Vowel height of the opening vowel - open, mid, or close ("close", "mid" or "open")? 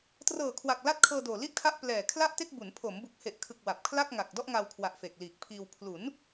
mid